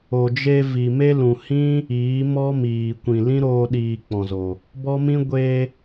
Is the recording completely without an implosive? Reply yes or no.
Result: no